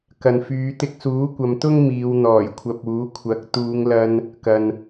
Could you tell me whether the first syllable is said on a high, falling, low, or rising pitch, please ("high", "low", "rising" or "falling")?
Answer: low